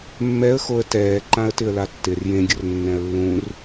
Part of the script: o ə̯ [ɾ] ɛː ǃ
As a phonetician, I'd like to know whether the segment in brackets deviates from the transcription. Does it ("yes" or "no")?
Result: yes